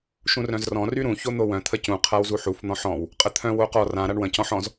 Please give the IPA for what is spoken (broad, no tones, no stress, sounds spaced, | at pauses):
ʃ ũ r œ̃ z r ɔ̃ r y ɾ ũ ç o n̪ o w œ̃ t̪ʰ ə c ũ qʰ a w z u ħ u f n̪ ɔ̃ ħ ɔ̃ w | qʼ ə t̪ʰ œ̃ w o q ɔ r ã ɾ a ɳ w ə̃ c ɔ̃ ħ ɔ̃ z